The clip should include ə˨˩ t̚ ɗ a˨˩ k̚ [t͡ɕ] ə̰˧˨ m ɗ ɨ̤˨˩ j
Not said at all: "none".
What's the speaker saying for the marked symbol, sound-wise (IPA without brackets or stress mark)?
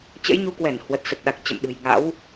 t͡ɕ